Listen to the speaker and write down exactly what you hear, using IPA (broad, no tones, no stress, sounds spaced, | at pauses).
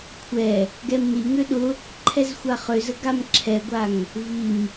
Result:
kʷʰ ɛ | ɡ ɛ m n i ŋ ø ɗ ʊ | ǃʰ ɛ z xʷ a χ ø z ə ɡ a m ǁʰ ɛ ɡʷ a ŋ | v i m